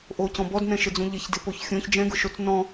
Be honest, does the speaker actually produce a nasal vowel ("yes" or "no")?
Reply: yes